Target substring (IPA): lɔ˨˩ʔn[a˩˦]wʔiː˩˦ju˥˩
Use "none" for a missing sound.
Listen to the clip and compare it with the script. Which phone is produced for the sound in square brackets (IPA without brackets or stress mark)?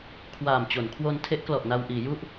a˧